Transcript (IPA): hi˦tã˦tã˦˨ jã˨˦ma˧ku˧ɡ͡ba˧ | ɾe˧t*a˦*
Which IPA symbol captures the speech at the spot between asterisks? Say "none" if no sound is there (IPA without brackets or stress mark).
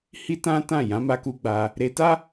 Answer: a˦